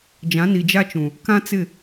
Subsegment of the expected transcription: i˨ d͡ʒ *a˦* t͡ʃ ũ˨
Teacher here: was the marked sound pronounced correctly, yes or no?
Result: yes